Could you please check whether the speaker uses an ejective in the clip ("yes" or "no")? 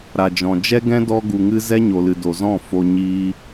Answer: no